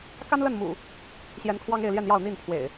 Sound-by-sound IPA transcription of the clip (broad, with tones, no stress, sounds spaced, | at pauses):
k a˦ n l ə˥˨ n m ṵ˨˩ | ɕ j ɛ˨˦ n kʰ w ɑ˦ ŋ e˥˨ ɪ̯ l j ɛ˥˨ n j ɑ˥˨ ʊ̯ n̪ i˥˨ n pʰ w ḛ˨˩ ɪ̯